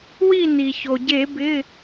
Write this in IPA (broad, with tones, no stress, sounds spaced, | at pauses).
w i˥˨ n i˩ ç o˩ ɟ e˧˩˧ b ɪ˩˧˩